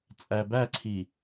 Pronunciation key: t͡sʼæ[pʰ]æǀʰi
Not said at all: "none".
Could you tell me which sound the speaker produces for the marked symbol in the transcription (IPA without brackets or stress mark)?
b